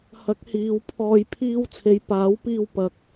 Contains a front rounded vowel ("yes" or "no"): no